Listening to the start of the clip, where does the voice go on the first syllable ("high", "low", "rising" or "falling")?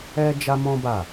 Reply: high